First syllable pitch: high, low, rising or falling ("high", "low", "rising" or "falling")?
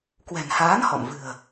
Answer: low